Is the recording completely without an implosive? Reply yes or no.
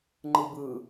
yes